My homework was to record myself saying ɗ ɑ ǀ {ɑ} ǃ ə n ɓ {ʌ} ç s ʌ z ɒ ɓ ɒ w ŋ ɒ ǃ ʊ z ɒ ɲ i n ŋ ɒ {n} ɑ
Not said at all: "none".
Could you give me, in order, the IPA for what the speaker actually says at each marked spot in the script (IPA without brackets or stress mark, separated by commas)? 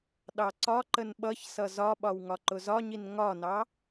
ɒ, ʌ, n